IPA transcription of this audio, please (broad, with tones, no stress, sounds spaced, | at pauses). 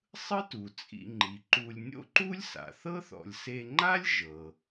sˤ ɯ˥ t u˩ t͡sʼ ḭ˨ ŋ͡ǃ i˩ ǃ u˨ lʲ nʲ o̰˥ ǃ u˥ lʲ s a̰˩ θ ɤ˥ θ ɔ̰˨ lʲ s e˦ ŋ͡ǃ a˥ lʲ ʒ ɤ˩